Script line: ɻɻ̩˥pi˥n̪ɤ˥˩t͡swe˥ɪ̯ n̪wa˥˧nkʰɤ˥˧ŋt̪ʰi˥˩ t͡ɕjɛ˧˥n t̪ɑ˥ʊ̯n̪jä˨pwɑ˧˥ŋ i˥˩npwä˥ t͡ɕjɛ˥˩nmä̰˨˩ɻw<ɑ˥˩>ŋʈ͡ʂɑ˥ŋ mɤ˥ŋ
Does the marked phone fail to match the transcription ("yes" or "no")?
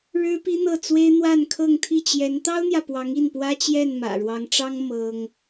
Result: yes